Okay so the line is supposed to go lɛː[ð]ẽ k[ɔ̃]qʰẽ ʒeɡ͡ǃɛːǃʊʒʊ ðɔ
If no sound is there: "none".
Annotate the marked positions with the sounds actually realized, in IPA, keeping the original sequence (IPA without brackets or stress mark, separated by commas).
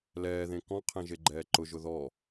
ð, ɔ̃